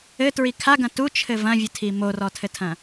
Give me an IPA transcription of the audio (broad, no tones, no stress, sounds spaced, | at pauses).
ɘ t ɹ i kʰ a ɡ ɐ̃ t u t͡ʃʰ ɘ v ɐ̃ vʲ ɨ tʰ i m o r ɔ tʰ ɘ tʰ ɐ̃